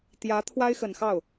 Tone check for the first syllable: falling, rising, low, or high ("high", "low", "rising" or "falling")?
rising